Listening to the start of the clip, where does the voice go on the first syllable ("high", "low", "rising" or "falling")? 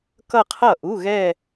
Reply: falling